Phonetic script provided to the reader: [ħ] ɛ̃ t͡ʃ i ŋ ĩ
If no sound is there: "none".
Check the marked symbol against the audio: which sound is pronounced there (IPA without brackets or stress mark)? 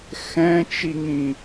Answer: x